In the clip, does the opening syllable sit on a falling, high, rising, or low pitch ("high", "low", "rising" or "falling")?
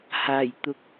low